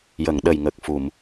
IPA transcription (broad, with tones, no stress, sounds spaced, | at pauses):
j ə˨˩˨ ŋ ɗ ə˨˩ j ŋ ə˨˩ k̚ f u˨˩˨ m